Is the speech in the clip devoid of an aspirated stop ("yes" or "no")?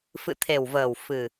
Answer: no